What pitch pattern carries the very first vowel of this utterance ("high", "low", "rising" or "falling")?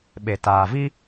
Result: low